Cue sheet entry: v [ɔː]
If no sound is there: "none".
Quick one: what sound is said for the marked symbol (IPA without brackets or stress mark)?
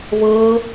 ɤː